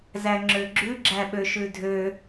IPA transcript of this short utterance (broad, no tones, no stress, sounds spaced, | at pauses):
z æ ŋ͡ǁ ø ɡ͡ǁ ʉ ɡ͡ǁ æ ɓ ø ʃ ʉ dʱ ø